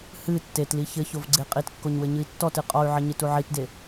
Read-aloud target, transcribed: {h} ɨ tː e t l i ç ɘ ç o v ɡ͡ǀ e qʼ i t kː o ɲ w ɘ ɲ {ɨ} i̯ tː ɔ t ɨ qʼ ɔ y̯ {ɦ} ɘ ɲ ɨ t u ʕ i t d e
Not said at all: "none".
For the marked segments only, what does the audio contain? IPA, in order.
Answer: h, ɨ, ʕ

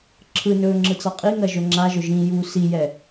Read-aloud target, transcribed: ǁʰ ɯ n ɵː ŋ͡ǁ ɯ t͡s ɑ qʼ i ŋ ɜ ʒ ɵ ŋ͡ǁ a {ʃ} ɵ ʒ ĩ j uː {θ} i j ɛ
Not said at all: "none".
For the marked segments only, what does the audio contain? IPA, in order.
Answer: ʒ, s

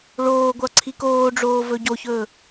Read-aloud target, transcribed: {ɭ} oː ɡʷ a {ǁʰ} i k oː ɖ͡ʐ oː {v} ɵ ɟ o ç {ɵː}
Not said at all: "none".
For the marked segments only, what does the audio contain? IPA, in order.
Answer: ɭ, ǀʰ, v, ɵː

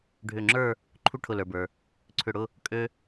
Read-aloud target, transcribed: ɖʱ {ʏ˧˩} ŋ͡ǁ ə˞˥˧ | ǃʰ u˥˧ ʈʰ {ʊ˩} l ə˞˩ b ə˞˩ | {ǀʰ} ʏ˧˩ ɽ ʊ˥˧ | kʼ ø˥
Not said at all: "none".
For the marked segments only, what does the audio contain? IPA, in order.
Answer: ʏ˧˩, ʊ˧˩, ǀʰ

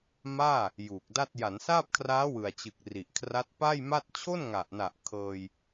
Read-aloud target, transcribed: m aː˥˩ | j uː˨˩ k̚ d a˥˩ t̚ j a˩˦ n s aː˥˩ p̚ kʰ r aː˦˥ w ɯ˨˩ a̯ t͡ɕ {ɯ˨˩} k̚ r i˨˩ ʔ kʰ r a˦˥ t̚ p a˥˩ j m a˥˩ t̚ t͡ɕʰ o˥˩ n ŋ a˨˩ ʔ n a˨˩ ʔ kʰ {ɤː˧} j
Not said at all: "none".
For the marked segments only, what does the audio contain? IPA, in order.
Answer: ɯ˨˩, ɤː˧

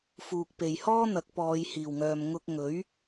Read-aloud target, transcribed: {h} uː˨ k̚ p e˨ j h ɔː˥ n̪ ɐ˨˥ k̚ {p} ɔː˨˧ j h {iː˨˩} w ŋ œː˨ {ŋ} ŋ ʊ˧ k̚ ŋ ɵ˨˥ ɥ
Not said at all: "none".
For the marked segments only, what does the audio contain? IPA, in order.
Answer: f, p, iː˨˩, m

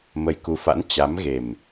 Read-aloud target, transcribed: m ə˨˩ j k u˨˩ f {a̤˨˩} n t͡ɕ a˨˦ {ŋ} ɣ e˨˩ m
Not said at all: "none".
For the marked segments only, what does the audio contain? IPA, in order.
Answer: a̰˧˥, m

